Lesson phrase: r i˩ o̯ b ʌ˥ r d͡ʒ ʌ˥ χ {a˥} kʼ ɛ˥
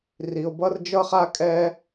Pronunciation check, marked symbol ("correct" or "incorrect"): correct